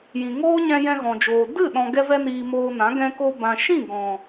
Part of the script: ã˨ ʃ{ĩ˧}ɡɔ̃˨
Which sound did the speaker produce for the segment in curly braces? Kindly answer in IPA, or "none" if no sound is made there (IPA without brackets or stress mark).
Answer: ĩ˦˨